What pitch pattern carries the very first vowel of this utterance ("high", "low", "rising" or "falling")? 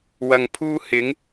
low